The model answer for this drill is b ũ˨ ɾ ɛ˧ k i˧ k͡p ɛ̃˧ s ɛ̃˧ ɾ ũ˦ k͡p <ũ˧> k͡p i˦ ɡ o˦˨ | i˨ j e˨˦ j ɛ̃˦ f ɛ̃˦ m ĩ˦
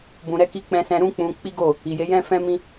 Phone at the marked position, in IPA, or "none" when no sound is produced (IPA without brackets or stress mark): ũ˧